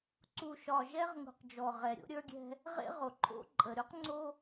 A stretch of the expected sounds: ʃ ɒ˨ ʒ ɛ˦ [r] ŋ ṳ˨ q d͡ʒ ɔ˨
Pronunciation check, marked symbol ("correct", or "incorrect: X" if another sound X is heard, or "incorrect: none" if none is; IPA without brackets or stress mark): incorrect: ʁ